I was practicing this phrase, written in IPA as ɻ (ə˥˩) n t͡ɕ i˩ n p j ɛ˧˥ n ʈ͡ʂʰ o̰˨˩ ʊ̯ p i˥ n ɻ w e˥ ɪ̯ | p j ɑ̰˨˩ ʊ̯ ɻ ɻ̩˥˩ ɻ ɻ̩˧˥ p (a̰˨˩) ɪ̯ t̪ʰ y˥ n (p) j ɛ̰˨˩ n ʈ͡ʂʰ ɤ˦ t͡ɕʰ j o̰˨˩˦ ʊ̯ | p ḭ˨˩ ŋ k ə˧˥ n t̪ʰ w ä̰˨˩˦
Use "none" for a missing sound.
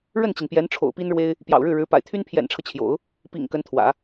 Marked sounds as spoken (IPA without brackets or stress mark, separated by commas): ə˥˩, a̰˨˩, pʰ